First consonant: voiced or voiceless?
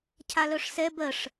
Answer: voiceless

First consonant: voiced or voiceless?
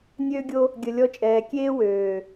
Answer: voiced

